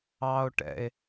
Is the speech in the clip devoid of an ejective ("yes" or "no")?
yes